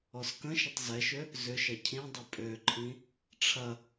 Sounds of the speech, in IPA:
ɔ s k ə̃ ʃ ə tˤ z ɛ ʃ ø | z ʏ ʃ ɐ cʰ ĩ dˤ ʏ pʼ ø ǃʰ ĩ | ʈ͡ʂʰ ɐ

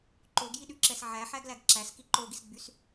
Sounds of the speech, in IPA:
ǃ o ɡ j i ɗ y ǁ ɛ s ʕ æ ħ æ ɡ l æ ɡ ǁ æ s k i ǃ o ɡ i s ɡ͡b y s

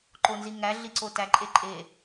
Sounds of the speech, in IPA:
ǃ o n z i ŋ æ ɮ i ǀ o t æ ǃʼ e ǃʼ e

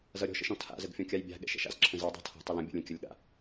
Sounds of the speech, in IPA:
z ʌ ɾʲ ɔ̤ ʃ ə̰ ʃ ɔ̃ tʰ a̰ z ə ɡ fʲ ɔ̃ kʲ a j bʲ a̤ ɠ ɛ̰ ʃ ɛ̰ ʃ a̰ z ǁʰ ə̃ z ɯ dˤ a̤ tʰ ɔ̤ tˤ ə l ə̃ bʲ ə̰ lʲ ə̃ kʲ ə lʲ ɠ a̰

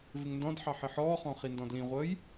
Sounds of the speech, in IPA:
v ɪ ŋ n d ɔ̃ d ħ ɑ ħ ɪ ħ ɔː χ ɔ̃ χ i n d ɔ̃ d l ĩ ʁʷ əː j

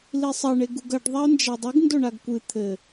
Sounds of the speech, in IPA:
l i sˤ ɐ ɳ e ɡ u ɡ ɐ ɖ ðˤ a ʊ̯ n d͡ʒ a dˤ ɨ ɡ n d o ɳ a ɡ kʷ ɨ t̪ʰ ɘ

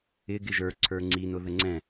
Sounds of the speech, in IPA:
ɪ ɡ ɪ ʒ ə˞ ǀʰ ə˞ ŋ͡ǀ i n ʊ ð ə ŋ͡ǀ ɛ̃

